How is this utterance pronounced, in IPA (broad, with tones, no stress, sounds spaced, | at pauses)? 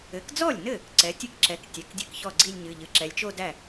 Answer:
ɘ˩˥ k d͡z ɔ˥˩ lʲ n ɘ˥˩ | ǀ ɛ˩˥ tʲ ɨ˥˧ k ǁ ɛ˩˥ k tʲ ɛ˩˧˩ k dʲ ɘ˥˩ k ç ɔ˥˩ ɡ͡ǀ i˥˧ lʲ ɲ ɨ˩˧˩ ʎ ɨ˩˥ ǁ ɛ˩˧ lʲ t͡ʃ o˥˧ d æ˥˩